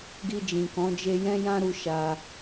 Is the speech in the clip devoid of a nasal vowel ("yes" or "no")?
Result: no